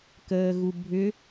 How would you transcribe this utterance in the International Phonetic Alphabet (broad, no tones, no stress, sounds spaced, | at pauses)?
k əː ɣ u bʱ ʏ